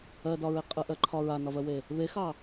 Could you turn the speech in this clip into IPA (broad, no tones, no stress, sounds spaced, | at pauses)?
ɜ d ɒ ɹ e qʼ ə ʔ ɜ ǃʰ ɒ ɹ a n ɒ v ɜ w e | β e x ɑ